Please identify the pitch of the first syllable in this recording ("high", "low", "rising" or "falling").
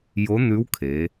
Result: rising